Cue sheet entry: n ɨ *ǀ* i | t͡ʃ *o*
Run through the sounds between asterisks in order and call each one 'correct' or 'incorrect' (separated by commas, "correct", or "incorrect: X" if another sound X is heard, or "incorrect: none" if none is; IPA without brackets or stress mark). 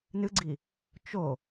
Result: incorrect: ɡ͡ǀ, correct